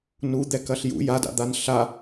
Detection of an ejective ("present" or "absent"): absent